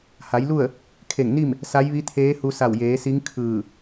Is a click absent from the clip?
yes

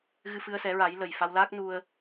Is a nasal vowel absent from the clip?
yes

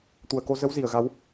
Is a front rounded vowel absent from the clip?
yes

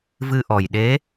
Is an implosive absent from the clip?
no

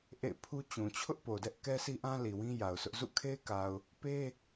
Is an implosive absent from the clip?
yes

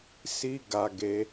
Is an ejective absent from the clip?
yes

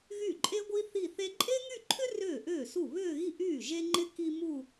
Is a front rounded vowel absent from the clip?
no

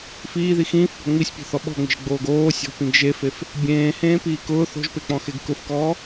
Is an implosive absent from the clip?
no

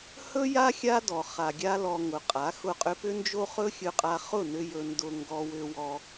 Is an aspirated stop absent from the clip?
yes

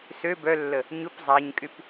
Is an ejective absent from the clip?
no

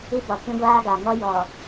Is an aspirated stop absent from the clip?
yes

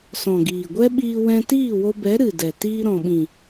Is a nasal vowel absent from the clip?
no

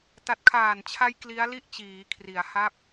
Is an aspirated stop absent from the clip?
no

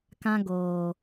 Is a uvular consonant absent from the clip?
yes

